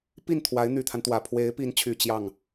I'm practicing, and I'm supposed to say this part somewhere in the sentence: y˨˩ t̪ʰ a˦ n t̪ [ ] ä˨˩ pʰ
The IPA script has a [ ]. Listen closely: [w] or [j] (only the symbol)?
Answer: w